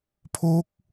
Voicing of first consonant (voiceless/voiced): voiceless